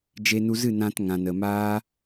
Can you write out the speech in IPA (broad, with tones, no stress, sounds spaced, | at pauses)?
d͡ʒ e˧ n u˧ z ɨ˦˨ n ã˧ t ŋ ã˧ n ə˧ m aː˦